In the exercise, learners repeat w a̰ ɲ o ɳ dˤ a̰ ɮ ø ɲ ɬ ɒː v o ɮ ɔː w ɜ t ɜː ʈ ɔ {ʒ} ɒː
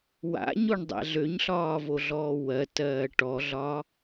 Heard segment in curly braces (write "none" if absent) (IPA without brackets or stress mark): ɮ